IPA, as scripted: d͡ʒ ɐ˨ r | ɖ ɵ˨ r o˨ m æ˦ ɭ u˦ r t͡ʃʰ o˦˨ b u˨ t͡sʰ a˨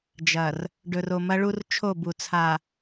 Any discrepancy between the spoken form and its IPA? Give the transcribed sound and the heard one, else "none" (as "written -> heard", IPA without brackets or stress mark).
æ˦ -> ɐ˦